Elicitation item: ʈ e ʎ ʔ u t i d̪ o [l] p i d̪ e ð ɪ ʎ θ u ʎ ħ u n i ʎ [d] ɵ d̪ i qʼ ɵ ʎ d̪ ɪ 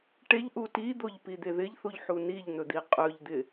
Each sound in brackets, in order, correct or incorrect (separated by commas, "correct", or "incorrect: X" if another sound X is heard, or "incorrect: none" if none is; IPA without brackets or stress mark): incorrect: ʎ, incorrect: n̪